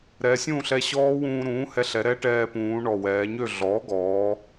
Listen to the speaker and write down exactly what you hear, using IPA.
ɾ ɛ˩˧ sʲ ũ˥˨ ɬ ɛ˧ ɕ ɔː˦˥ w ũː˧ ɾ ũː˩˥ h ɛ˧ ɬ ɛ˩˧ ɾ ɛː˦˥ ʈ ɛː˧ p ũː˩˧ ɳ ɔ˨˩ w ɛː˩˧ ɲ ø˥˨ ɮ ɔː˩˥ ɡ ɔː˩˧

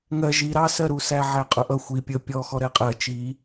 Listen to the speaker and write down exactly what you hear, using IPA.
ŋ ɜ ʒ i ɾ ɑ s ɜ ɾ u s æ ʕ æ qʼ ʊ ʔ ʌ xʷ i pʲ ə pʲ ɔ x ɔ ɾ ɛ qʼ ɜ t͡ʃ i

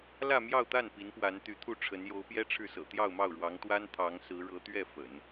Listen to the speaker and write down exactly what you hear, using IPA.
l ä˥˧ m j ɑ˥˧ ʊ̯ t̪ a˥˩ n p i˧˥ n p w a˧˥ n t̪ y˧˥ t̪ʰ u˥˩ ʈ͡ʂʰ ə˧˥ n j o˧˥ ʊ̯ p j ɛ˥ ʈ͡ʂʰ ɻ̩˥˩ s ɤ̰˨˩ t̪ j ɑ˥˧ ʊ̯ m ɑ˥˩ ʊ̯ ɻ w ɑ˧˥ ŋ t̪ w a˥ n t̪ʰ ɑ˧˥ ŋ s ɹ̩˧˥ ɻ ɤ˧˥ t̪ ɥ ɛ˥˩ f ə̰˨˩˦ n

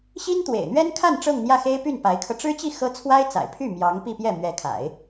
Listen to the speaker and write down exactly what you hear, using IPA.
ɕ i˥ n t̪ w ḛ˨˩ ɪ̯ n̪ ɥ ɛ˥ n kʰ a˥˧ n ʈ͡ʂ ɤ˥˧ ŋ n̪ j ä˥˩ x e˥ ɪ̯ p y˥˩ n p a˧˥ ɪ̯ kʰ ɤ˧ ʈ͡ʂ ɻ̩˥ t͡ɕ i˥˩ x ɤ˥ t͡sʰ w a˥ ɪ̯ t͡s a̰˨˩ ɪ̯ pʰ y˥˩ m j ɑ˧˥ ŋ p i˥˧ p j ɛ˥˩ m ɥ ɛ˧˥ kʰ a̰˨˩˦ ɪ̯

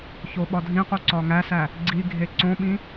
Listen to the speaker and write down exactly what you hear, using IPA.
ç o ɓ ɒ dʱ ĩ q u ǀ ɒ ŋ æ s æ | ɡ͡ǀ i ɡʱ e ǀ õ ɓ ĩ

